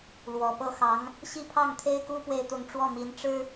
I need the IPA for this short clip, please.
l w ɔ˨˩ p ɤ˥˩ x ɑ˧˥ ŋ | ɕ i˥˧ pʰ ɑ˥˩ ŋ t̪ʰ e˥ ɪ̯ k u˥ p w e˥˧ ɪ̯ t̪ ʊ˥˧ ŋ ʈ͡ʂ w ɔ˥˩ m i˧˥ n ʈ͡ʂ ɻ̩˥

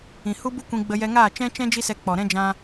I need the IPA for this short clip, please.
ĩ˨ h u˦ b u˦ kʷ ĩ˧ ɡ͡b ə˧ j ɛ˧ ŋ aː˦˨ t͡ʃ ɛ̃˧ t͡ʃ ɛ̃˧ d͡ʒ i˦ s ɛ˧ k͡p ɔ˨ ɾ ɛ̃˦ d͡ʒ ã˧

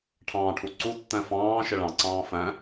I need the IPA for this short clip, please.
ʈʰ ɑ̃ː ʈʰ u ǀ u tː æ̃ f ɑ̃ː ʃ ɪ ɭ ɑ̃ ǀ ɑ̃ː f æ̃

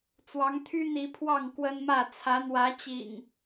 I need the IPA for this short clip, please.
t͡s w ɑ˨˦ ŋ t̪ʰ y˦ n̪ i˨˦ pʰ w ɑ˥˨ ŋ k w ə˦ n m ä˥˨ t͡sʰ ä˨˦ n̪ w ä˨˦ t͡ɕ ḭ˨˩ ŋ

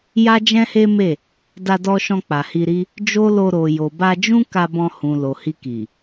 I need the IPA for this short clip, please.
j a˦ d͡ʒ ɛ̃˦ h e˦ m e˦˨ | d a˧ d ɔ˧ ʃ ɔ̃˧ k͡p a˨ h i˧ ɾ i˦ | d͡ʒ o˦ l o˧ ɾ o˨ j o˨ b a˧ d͡ʒ ũ˦ k a˧ b ɔ̃˧ h ũ˨ l o˨ h i˧ k i˨

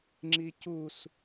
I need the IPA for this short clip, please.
ŋ͡ǁ i c u s

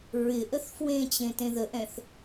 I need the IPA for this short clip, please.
ɹ ɪ ʔ ə θ f w ẽ t͡ɕ ẽ t ẽ ð ə ʔ ɛ̃ θ

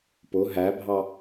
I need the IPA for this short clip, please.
p ʊ ɦ æ bʱ ɑ

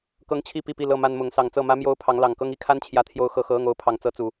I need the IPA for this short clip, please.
k ɤ˦ ŋ t͡ɕʰ i˥˨ p i˥˨ p i˥˨ l ɤ˥˨ m a˦ n m ʊ˨˦ ŋ s ɑ˨˩ ŋ t͡s ɤ˥˨ m ä˦ m j o˦ ʊ̯ pʰ ɑ˨˦ ŋ l ɑ˨˩ ŋ k ɤ˦ ŋ i˦ kʰ a˦ n t͡ɕʰ j ä˨˦ t̪ʰ j o˨˦ ʊ̯ x ɤ˨˩ x ɤ˨˦ ɤ˥˨ ŋ o˨˦ ʊ̯ pʰ ɑ˨˩ ŋ t͡s ɤ˦ t͡s u˨˩

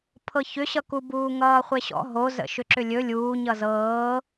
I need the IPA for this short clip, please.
pʰ ɤ ç ʏ ɕ ʌ k u b uː ŋ ʌː χʷ e ɕ ɔ̰ ɦ o z ə̰ ʃ ʏ ǁ ʏ lʲ ɵ lʲ uː ɲ ʌ z ɤː

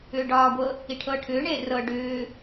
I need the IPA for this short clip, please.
ʏː ɖ ɒː ɡʷ ɤ | i ʈʰ ɤː ʈʰ ʏː ɳ eː r ɤ ɖ ʏː

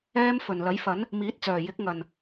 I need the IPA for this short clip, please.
ɛː˥ m f ɵ˨˩ n l ɐ˨˥ j f ɐ˨˥ n | m iː˨˥ t̚ t͡s œː˨˩ j ɪ˨˥ k̚ ŋ ɐ˨˩ n

